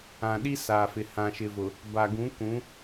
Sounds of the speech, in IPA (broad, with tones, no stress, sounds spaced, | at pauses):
ã˨ ɗ i˦ s aː˨ f ɪ˨ h ã˨ ʃ ɪ˨ v ʊ˨ | b a˨ ɡ ũ˨˦ k ũ˨˦